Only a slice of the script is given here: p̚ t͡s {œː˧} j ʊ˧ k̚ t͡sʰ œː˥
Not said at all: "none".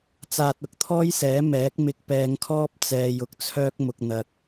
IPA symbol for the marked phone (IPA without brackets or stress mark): ɛː˧